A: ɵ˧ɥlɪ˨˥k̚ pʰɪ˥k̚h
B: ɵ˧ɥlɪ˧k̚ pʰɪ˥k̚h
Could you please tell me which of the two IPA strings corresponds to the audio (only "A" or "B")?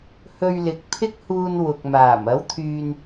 A